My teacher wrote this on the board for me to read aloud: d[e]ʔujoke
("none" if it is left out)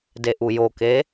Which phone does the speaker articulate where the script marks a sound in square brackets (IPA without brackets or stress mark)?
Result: e